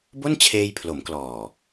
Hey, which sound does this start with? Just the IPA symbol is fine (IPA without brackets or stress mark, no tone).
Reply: b